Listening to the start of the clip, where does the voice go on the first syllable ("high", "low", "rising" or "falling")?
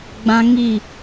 high